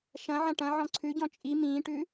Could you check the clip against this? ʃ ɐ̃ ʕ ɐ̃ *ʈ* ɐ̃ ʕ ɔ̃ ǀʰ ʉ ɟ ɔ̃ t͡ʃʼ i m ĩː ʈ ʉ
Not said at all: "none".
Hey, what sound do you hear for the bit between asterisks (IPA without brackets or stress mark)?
ʈ